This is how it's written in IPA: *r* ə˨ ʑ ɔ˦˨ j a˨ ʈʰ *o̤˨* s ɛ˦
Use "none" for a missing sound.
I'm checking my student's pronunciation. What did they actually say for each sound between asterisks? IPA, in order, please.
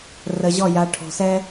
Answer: r, o̤˨

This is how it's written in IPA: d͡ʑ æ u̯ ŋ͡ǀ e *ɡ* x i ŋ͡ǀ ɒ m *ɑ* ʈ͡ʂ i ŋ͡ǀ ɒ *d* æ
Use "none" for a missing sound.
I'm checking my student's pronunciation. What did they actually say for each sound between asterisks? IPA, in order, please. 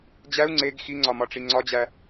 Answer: ɡ, ɒ, d͡ʑ

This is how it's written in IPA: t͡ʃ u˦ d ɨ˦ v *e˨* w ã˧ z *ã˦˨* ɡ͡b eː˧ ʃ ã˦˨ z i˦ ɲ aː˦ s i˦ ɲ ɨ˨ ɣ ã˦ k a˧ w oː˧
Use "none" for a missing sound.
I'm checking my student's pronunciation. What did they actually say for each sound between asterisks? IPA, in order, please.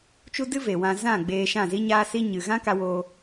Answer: e˨, ã˦˨

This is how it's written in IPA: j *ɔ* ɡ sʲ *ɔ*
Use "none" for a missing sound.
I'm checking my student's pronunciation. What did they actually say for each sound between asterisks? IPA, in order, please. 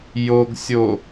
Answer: o, o

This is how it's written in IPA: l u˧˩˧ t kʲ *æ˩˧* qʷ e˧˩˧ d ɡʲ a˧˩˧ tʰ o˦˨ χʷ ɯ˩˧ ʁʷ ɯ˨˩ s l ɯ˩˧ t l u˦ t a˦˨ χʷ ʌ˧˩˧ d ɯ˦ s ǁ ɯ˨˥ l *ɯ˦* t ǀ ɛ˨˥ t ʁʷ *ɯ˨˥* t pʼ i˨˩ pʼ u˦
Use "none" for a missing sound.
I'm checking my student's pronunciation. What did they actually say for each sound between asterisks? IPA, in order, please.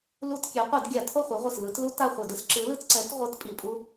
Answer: ɛ˩˧, ɯ˦, ɯ˨˥

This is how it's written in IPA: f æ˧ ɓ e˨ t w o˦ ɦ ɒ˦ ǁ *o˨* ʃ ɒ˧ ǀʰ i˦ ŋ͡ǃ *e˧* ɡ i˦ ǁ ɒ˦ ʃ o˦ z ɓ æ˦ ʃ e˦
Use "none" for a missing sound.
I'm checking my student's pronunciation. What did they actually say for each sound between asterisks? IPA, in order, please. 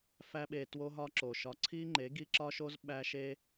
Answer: o˨, e˨˦

